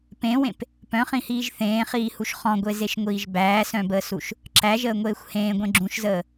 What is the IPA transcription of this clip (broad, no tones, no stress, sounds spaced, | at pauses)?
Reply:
p ẽ w ẽ p | p œ̃ χ ĩ h iː ʒ θ ẽː χ iː h u ʃ χ ɔ̃ ɡʷ e z e ʃ ŋʷ iː ʒ b æː s œ̃ b əː s u ʃ | ǁ æ ʒ əː ŋʷ eː xʷ h ẽː ɡʷ ẽ ɡ͡ǁ ũ ʃ z əː